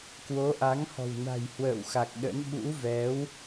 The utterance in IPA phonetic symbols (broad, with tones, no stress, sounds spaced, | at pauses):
k w o˨˦ ʔ a˨˦ ŋ h ɔ̤˨˩ w n a̤˨˩ j h w ə̰ː˧˨ w x a˨˩ k̚ ɗ ə̰˧˥ n ɓ ṵ˧˥ v ɛ˨˦ w